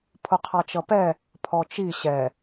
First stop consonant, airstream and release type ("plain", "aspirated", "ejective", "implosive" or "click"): aspirated